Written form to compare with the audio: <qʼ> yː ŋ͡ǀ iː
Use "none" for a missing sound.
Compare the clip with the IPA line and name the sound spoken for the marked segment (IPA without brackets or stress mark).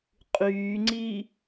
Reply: qʼ